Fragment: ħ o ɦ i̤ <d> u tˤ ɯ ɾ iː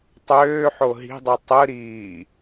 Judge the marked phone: incorrect: dˤ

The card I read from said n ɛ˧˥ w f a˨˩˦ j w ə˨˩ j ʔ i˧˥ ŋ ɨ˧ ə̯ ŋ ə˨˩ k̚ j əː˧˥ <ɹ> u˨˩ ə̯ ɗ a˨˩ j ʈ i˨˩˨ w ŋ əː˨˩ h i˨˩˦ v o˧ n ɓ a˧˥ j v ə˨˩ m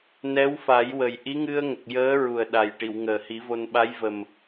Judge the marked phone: correct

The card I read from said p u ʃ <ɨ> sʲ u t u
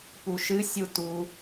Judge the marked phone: correct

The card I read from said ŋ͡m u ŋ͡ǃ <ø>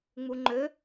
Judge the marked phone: correct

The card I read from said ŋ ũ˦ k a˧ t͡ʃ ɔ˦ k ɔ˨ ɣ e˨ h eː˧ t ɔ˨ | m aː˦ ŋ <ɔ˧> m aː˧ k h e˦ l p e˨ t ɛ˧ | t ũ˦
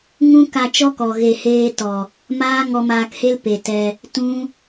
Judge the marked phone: correct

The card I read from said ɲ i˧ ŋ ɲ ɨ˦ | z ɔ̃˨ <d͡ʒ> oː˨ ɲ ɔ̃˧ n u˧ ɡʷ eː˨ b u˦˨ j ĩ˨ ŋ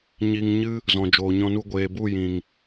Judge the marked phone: correct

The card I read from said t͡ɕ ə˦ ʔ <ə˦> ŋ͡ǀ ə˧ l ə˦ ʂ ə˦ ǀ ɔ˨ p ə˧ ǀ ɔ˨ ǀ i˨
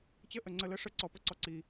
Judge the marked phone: incorrect: ə˨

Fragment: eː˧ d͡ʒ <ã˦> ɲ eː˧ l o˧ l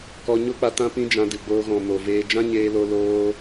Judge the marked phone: correct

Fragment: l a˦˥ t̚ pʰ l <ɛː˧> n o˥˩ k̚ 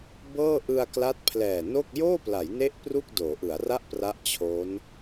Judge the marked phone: incorrect: ɛː˨˩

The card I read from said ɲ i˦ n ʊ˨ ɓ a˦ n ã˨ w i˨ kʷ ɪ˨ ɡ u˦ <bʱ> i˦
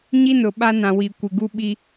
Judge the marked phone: incorrect: ɓ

